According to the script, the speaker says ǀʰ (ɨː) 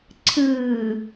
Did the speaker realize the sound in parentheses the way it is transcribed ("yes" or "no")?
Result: yes